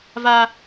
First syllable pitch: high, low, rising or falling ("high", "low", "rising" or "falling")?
high